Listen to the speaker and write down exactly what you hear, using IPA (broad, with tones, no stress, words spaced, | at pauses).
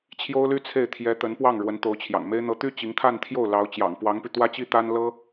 t͡ɕʰjo˥ʊ̯ly˥t͡sʰe˥˩ɪ̯ t̪ʰjɛ˧˥ t̪ə˧˥npwɑ˥˩ŋ ɻwə˧˥nt̪o˧˥ʊ̯t͡ɕʰjɑ̰˨˩ŋme˥ɪ̯ n̪ɤ˧˥t̪y˥ t͡ɕi˧˥ŋt̪ʰa˥˧nt̪ʰjo˥˩ʊ̯lɑ˧˥ʊ̯ t͡ɕjɑ̰˨˩ŋpwɑ˧˥ŋpy˧ t̪wä˥t͡ɕi˥ t̪a˥n lɤ˥